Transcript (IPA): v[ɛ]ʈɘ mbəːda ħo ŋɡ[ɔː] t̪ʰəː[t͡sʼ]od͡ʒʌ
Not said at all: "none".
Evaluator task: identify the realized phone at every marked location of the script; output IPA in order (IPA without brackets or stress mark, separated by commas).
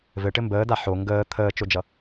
ɘ, əː, t͡ʃ